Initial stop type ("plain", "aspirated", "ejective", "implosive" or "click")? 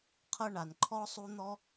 aspirated